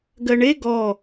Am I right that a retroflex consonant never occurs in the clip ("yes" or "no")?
no